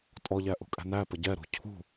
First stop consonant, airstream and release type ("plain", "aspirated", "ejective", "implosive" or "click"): ejective